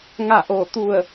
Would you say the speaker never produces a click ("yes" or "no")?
yes